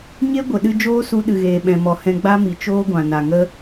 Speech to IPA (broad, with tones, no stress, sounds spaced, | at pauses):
ɲ e˦ ɡʷ ə˨ ɗ ɨ˧ d͡ʒ oː˦ s u˧ ɗ ɨ˨ ɣ eː˨ ɓ ɛ̃˨ m ɔ˨ h ɛ̃˧ ɡ͡b a˦ m i˨ t͡ʃ oː˦ ɡʷ ã˨ n a˨ ŋ ə˦